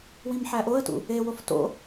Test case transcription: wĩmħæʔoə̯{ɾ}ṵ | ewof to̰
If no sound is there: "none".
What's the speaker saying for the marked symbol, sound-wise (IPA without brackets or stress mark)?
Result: t